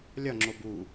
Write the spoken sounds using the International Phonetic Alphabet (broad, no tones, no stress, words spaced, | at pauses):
lʲɒŋ͡ǁo bu